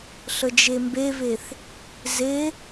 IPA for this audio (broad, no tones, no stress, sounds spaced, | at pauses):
ɬ ə d͡ʒ e m b e v e θ | z e